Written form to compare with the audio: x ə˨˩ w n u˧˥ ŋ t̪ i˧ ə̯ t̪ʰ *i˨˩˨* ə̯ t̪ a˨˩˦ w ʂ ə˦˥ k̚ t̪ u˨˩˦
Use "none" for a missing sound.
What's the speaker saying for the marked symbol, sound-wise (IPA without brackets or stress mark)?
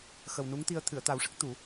ɨ˨˩˨